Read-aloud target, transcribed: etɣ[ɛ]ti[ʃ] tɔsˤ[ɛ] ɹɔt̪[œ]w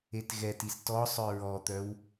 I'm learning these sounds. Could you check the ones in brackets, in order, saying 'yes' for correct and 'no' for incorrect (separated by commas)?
yes, no, no, yes